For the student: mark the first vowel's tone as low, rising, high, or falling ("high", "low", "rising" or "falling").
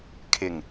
low